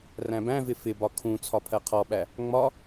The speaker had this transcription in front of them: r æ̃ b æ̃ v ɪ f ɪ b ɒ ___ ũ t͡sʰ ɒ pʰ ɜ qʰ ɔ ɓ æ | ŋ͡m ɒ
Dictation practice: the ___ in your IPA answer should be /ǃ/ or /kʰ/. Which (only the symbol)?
kʰ